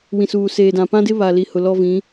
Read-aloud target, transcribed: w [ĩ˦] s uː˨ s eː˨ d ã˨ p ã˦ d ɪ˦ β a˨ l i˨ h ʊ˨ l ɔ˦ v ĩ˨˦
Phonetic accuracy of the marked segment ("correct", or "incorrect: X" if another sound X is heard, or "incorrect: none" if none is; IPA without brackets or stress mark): incorrect: ĩ˨